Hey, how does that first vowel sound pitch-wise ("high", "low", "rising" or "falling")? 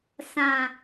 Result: low